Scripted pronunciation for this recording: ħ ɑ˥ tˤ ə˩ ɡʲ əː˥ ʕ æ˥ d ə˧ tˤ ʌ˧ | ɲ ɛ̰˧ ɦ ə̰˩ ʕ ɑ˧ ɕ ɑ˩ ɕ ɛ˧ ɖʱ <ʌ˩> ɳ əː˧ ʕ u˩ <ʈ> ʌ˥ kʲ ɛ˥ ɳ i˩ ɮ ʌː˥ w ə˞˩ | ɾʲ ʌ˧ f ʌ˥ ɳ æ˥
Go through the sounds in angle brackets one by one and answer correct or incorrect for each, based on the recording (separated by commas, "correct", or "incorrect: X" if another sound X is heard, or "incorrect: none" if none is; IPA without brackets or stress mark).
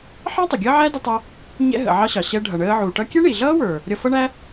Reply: correct, correct